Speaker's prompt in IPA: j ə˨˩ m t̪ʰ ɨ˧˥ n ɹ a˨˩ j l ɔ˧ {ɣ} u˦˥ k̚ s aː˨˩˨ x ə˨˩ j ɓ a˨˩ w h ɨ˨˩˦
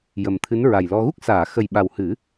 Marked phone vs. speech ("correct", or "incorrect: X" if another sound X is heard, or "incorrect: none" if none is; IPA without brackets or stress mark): correct